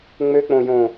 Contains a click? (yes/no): no